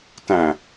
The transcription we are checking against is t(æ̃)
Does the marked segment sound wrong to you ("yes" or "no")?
no